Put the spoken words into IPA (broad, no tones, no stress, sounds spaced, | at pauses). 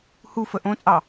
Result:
h u f ə ʔ õ t͡sʼ ɑ